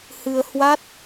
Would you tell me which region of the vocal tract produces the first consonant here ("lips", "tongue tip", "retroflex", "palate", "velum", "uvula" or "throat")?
throat